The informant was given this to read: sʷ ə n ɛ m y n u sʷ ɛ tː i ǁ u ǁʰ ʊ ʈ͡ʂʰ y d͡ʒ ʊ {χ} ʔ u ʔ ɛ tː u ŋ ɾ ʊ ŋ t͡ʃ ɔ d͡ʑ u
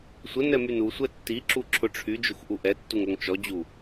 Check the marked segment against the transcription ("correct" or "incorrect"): incorrect